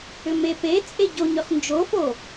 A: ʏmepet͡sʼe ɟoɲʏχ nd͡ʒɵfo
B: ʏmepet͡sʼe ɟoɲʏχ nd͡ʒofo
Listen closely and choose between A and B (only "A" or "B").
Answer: B